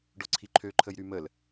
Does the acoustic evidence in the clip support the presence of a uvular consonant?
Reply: no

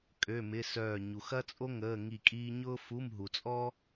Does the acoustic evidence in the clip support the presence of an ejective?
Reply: yes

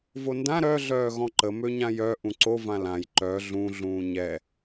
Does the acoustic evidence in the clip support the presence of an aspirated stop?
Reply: no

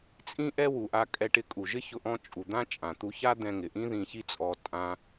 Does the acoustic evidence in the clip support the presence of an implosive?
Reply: no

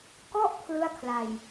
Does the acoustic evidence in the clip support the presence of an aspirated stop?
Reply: yes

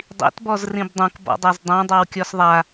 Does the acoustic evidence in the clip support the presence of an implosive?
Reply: no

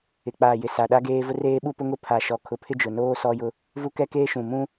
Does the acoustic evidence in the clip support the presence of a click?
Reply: no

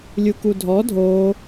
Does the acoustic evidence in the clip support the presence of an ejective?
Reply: no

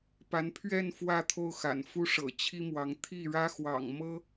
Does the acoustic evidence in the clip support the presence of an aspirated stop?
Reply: yes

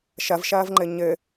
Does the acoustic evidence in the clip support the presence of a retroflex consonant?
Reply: no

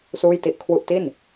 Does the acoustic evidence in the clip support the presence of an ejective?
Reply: no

